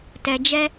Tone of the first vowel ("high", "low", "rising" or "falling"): low